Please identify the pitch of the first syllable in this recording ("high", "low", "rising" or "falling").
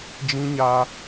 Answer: high